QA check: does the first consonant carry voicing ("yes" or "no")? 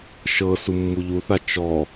no